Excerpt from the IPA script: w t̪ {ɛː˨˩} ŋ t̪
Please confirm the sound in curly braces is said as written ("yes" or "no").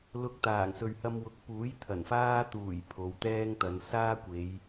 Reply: no